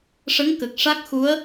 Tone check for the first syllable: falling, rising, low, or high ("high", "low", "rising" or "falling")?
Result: rising